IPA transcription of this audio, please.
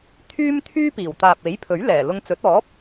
t̪ʰ yː˥ m t̪ʰ yː˥ p iː˨˩ w t̪ aː˨ p̚ e˨˥ j pʰ ɵ˨˥ ɥ l ɛː˨˩ l ʊ˧ ŋ t͡s ɵ˨˥ t̚ ɔː˨˥ p̚

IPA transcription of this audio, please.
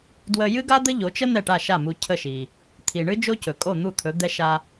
d w ə˧ j ɨ˥ ɡ a˥ d̪ ə˥ ʎ o˩˥ t͡ʃ ə˥ n̪ ɛ˥˩ ʈ a˥˩ ʃ a˥˩ m u˧ cʰ ə˥˩ ʃ i˩ | t̪ʰ i˩ ɳ ɨ˥ d͡ʒ o˥ c ɵ˩ kʼ o˥˩ n̪ u˥˩ t̪ʰ ɵ˩˥ d̪ ɛ˥ ʃ a˧

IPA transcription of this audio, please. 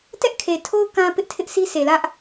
t ɛ˦ ʔ kʰ e˨ tʰ o˦ ʊ̯ k ã˦ p ɪ˦ ʔ tʰ ɪ˦ ʔ sʰ i˦ s e˨ l ä˦ ʔ

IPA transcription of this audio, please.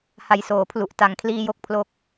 h a˨˩ j s oː˩˦ pʰ l u˨˩ ʔ t a˩˦ ŋ kʰ l iː˧ j o˥˩ k̚ pʰ l o˥˩ k̚

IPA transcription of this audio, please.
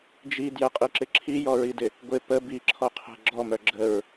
d͡ʒ i d j ə qʼ i ǁ ɪ ǁʰ i j ɔ ɹ i d ɪ | ɡʷ ɪ p ə b i ǁʰ ɔ qʰ ɛ̤ ɡ͡ǁ ɔ m œ ɡ͡ǁ ə ɹ

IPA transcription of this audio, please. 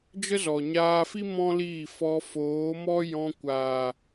d͡ʒ ə˦ z ɔ˨ ɲ aː˧ f i˦ m ɔ̃˦ l iː˦˨ f ɔ˧ f oː˨˦ m ɔ˦ j ɔ̃˧ kʷ aː˨

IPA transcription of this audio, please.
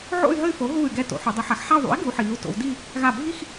ʕ o̰˥˧ y̯ ɦ ə˥˧ y̯ f o˩˥ ɦ uː˧˩ y̯ ɡ ɛ˧˩ t o̰˩˥ ħ u˩˧ dˤ i˩˥ ħ a˩˥ x ħ a˥˧ u̯ ðˤ ṵ˩˥ i̯ ɡ u˩˧ ħ iː˩˧ u̯ t o̰˩˧ w d i˥˧ | ɣ a˧˩ bʱ i˥˧ x

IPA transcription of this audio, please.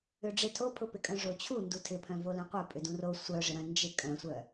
ʏ ɖ͡ʐ ɪ tʰ o pʰ ʊ p ɪ kʼ œ̃ ʐ o t͡ɕʰ u n d u tʰ ɪ pʰ œ̃ v o l œ̃ qʷ œ pʼ ʏ d ũ r o sʷ œ ʐ ɪ ɾ œ̃ n d͡ʒ ɪ kʼ œ̃ sʷ œ

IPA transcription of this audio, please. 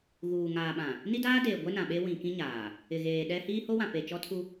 ɣ uː˨ ŋ aː˨ ɓ ã˨ | n i˦ d aː˦ d eː˨ ɡʷ ɛ˦ n ã˨ ɓ e˦ w ĩ˨ k ĩ˦ ɲ aː˨ | ɪ˨ ɣ eː˨ ɗ ɛ˦ h iː˦ h o˦ w ã˨ p e˨ t͡ʃ ɔ˦ tʰ u˦

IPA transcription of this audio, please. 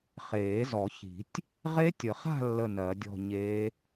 χ eː˨˩˦ z ɔ˨˩˦ ç i̤˨˩˦ tʲ | ʁ e˦˥ tʲ ə˨˩˦ χ a̤˥˧ lː ə˥˧ n ɜ˨˩˦ dʲ ɔ̤˥˧ ɲ e˦˥

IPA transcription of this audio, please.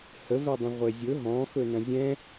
h ə v ɛ dˤ ə̃ ʁʷ e zʲ ɵ ɦ ɔ̃ x ɵ n ɐ̃ zʲ ɛ̃

